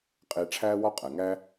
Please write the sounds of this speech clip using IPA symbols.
qʼ eː˧ ʈ͡ʂʰ æː˥ w ɒ˥ qʼ æ˩ ŋ æ˥

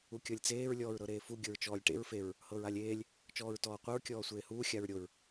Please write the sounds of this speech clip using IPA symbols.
u kʲ ɤ lʲ t͡s eː ɹ lʲ ɔː ɹ ɾ ɤ ɾ eː f u ɡʲ ɤ ɹ t͡ʃ ɔː lʲ ʈ ḛ ɹ f e ɹ | h ɤ ɹ a lʲ eː lʲ | t͡ʃ ɔː ɹ t ɔː qʷ e ɹ kʲ ɔː sʷ eː h uː xʲ a ɹ ɾʲ o ɹ

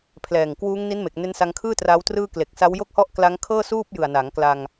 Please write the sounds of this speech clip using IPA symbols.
pʰ l ɛː˨˩ ŋ k w uː˦˥ ŋ n i˦˥ n m e˨˩ k̚ n e˦˥ n s a˧ ŋ kʰ ɯː˥˩ t r aː˦˥ w t r ɯː˥˩ k l e˨˩ k̚ s a˦˥ w j o˥˩ k̚ h ɔ˥˩ ʔ k l a˦˥ ŋ kʰ ɤː˥˩ s uː˥˩ p̚ j ɯ˨˩ a̯ n a˩˦ ŋ k l a˧ ŋ

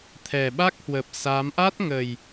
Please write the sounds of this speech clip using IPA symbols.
t̪ʰ ɛ˨˩ ɓ a˦˥ k̚ h w ə˨˩ p̚ s a˨˦ m ʔ a˦˥ t̚ ŋ ə˨˩ j

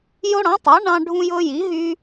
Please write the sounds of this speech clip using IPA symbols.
j o˦ ɽ ɑ̃˨˥ tˤ ɑ˨˥ ɳ ɑ̃˦ ɖʱ ũ˦ j ɤ˦ j i˨˥ ɦ y˦

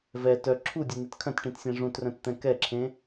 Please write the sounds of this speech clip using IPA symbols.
v ɛ t œ ǁʰ u dʲ œ n̪ e t kʰ œ̃ t ʈ ĩ t sʲ ẽ ʐ ũ t r œ̃ t t̪ ɛ̃ k ɛ ǁʰ ẽ

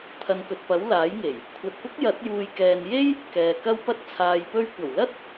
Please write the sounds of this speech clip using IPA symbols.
t̪ʰ ɐ˨ n k ɵ˨ t̚ p ɐ˨˥ w l aː˨˥ j ŋ e˨˩ j | kʷʰ ɐ˨ t̚ p ʊ˥ k̚ j ɐ˨˥ t̚ j uː˨ j k ɛː˨ n j e˥ j | k ɛː˨ k ɐ˥ w p ɐ˥ t̚ t͡sʰ aː˨ j p ɵ˧ ɥ kʷ ɐ˨˩ w l ɐ˥ t̚

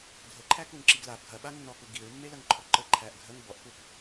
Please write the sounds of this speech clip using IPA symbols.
dʱ ə ǃʰ æ k u ŋ ǁ i ɡ l a p ɡʱ ɐ ɓ a nː ɔ k u ɡ i ɹ mː e l ɐ ŋ ǃʰ ɔ ǃ ə ǃʰ æ ʔ ɡʱ ə ŋ b ɔ ʔ k u k

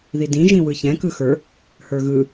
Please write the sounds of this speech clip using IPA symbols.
ð i d ĩ ʒ ĩ w ɯ ç ɛ̃ k ɯ x ə˞ | h ə˞ ɣ ɯ

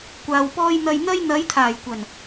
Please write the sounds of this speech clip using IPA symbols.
kʷ aː˨ w p ɔː˧ j n̪ ɐ˨ j n̪ ɐ˧ j n̪ ɐ˨˧ j t̪ʰ aː˨˩ j kʷ ɐ˨˩ n

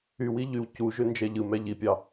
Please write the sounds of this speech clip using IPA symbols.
y w i ʎ y w c u ʒ ø n d͡ʒ æ ʎ ɯ m æ ʎ i pʲ ɑ

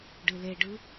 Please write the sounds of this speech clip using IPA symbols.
ɖ ɨ l e ɖ ɯ

